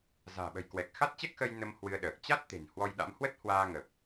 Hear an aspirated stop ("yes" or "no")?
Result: no